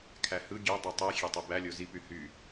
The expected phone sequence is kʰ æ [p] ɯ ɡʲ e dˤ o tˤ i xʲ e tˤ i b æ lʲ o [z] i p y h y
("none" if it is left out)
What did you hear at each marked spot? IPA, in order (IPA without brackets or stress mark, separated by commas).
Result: h, z